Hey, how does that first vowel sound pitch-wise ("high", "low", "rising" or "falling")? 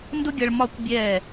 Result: high